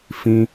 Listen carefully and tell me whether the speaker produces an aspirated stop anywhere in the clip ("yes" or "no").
no